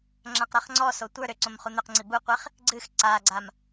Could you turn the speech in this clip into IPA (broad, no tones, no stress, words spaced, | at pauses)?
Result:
ŋ͡ǁãqɾaχŋ͡ǀɔso tʷə˞ ɾʏǀõm χun̪ʏqŋ͡ǀi buqʷeχ | ɡ͡ǀɨx ǀaɡ͡ǀam